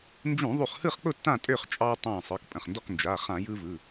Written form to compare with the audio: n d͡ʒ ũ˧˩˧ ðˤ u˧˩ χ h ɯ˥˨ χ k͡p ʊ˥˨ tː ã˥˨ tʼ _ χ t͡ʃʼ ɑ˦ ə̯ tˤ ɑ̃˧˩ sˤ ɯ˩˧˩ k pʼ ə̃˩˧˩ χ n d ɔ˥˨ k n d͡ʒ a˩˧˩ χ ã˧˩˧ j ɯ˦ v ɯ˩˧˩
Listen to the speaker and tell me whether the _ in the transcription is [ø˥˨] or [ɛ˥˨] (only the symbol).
ø˥˨